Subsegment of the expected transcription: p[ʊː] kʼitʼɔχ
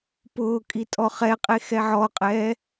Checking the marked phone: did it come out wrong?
no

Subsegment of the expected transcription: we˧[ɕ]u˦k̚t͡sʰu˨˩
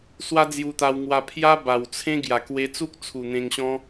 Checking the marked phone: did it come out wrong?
yes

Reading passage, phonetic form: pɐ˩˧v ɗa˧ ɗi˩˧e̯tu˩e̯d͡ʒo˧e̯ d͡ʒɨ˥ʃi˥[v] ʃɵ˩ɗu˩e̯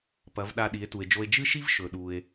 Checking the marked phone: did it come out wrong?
no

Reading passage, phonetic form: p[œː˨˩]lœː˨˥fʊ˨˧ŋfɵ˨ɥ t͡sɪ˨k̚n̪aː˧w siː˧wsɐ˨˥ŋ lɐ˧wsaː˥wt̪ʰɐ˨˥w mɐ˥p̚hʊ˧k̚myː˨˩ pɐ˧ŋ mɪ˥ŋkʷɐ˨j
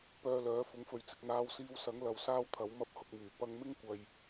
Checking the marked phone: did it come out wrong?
yes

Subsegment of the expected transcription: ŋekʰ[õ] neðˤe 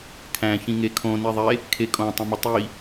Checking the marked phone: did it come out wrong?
no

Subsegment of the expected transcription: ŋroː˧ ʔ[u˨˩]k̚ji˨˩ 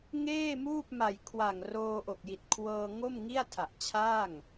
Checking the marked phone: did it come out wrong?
yes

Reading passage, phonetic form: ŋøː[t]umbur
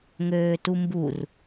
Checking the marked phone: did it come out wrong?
no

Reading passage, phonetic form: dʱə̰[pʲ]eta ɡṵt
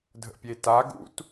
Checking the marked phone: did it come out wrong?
no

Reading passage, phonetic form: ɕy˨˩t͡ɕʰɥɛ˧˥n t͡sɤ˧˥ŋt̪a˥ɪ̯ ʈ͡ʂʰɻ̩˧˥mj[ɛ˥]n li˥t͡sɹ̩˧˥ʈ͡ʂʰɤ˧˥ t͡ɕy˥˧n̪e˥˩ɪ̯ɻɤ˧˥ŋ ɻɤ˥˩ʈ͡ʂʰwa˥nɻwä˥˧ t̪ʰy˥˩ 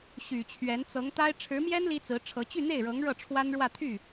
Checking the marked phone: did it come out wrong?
no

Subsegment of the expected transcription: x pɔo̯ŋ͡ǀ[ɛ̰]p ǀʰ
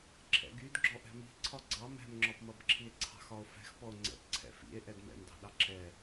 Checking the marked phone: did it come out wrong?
no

